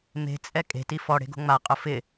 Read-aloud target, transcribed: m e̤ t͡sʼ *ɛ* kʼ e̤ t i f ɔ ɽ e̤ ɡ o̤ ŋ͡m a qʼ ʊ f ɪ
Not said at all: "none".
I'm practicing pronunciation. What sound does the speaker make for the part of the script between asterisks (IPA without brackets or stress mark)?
ɛ